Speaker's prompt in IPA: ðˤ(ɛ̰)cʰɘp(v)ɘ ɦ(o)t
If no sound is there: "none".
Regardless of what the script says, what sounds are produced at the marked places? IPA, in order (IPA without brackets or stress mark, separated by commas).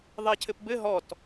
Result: ɛ, b, ɔ